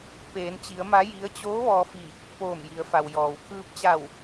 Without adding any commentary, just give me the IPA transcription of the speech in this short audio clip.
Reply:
peː˩˧nt͡ɕi˩˧ə̯ma˧˥ ji˧˥ə̯ t͡ɕoː˧˥ ʋɔː˧fi˧˩ | poː˧˩mji˩˧ə̯fa˩w jɔː˩w kʰɯː˧p̚t͡ɕa˧˩w

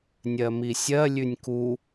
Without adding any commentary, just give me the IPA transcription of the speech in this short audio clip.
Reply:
nʲɜmisʲɜ lʲʉnʲku

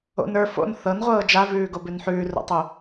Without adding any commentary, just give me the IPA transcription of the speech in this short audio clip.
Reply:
o̰n ə˞ fo̰n θɤnʁʷɤː d͡ʒavʉːɡobʉn ħʉːro̰tˤo

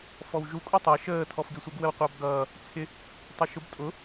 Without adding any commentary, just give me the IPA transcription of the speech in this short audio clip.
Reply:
fɔwʒu kʼutˤæ ʃəː tʰɔfɡisʷəɡ wəwqʷɑbɡʌː | t͡sʰɪ | tˤə˞ʃʊb tʼʊ

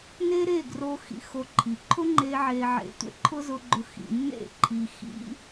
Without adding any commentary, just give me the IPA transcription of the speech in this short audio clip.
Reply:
ne˦ɾe˦˨ ɡro˧ xḭ˧ xo˧ ǃʰi˨ǃʰʊ˦ŋ͡ǃe˧ ʕe˨ʕḛ˨tʷḛ˦ ǃʰʊ˦zʊ˧ɡ͡ǃʊ˧ xḭ˨nːḛ˦˨ǃʰi˨ xḭ˦

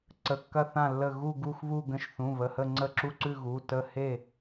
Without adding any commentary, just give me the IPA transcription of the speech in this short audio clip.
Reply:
ǀə˩˧˩kːɐ˧˩ θã˧˩lːə˧˩ ɣu˧˩ ɡu˧˩xβu˧˩ ɡə̃˧˩ʃθũ˩˧˩βə˩˧˩hə˧˩ ŋ͡ǀə˧˩ǁu˧˩ǀʉ˧˩ ɣu˩˧˩ tə˧˩he˧˩

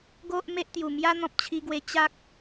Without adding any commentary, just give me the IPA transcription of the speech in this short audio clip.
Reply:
ɡo˦ʔ me˦ʔt̪ju˨˩ mja˦n̪ɔ̃˨p̚t͡ɕʰi˧ɡwe˧ t͡ɕa˦k̚

